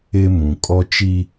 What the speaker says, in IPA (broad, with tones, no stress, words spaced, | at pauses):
ɪ˦mũ˨ kʼɔ˦t͡ʃi˦